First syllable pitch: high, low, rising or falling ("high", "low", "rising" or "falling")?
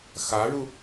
rising